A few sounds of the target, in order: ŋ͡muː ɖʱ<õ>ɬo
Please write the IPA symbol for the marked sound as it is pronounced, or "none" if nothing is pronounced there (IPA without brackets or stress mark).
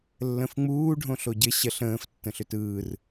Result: õ